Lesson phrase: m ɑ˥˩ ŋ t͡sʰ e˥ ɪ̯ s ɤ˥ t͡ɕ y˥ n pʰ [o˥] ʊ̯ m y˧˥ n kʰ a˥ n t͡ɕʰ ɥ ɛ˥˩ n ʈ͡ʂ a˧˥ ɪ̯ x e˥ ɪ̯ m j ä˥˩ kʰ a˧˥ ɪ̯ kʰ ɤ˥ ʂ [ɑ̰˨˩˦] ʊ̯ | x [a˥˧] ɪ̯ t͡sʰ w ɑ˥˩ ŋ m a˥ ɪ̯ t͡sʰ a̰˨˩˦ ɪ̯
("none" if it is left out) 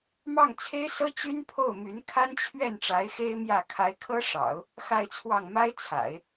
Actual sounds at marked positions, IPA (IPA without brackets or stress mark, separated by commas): o˥˩, ɑ̰˨˩˦, a˥˧